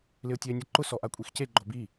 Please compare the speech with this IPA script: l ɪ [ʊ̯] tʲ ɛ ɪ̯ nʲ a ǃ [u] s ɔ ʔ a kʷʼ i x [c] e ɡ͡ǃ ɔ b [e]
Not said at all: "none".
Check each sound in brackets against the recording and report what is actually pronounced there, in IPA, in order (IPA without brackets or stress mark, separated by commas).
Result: ʊ̯, ʊ, c, i